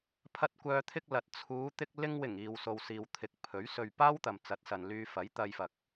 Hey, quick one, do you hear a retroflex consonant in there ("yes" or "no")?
no